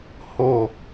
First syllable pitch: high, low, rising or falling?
falling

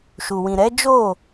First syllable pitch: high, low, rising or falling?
low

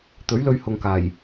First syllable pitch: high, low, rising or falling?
rising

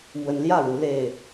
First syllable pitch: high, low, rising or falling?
rising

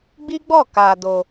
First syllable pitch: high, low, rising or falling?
high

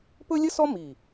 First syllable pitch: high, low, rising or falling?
high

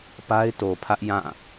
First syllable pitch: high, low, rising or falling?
high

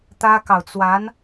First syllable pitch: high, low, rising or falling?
high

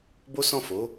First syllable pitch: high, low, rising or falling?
high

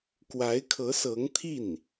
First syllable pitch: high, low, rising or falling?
rising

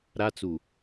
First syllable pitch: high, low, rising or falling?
high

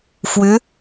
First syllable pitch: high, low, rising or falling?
rising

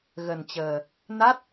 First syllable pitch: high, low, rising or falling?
low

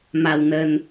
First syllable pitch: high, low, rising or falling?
low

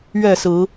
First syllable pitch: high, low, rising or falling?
falling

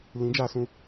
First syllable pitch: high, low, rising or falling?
rising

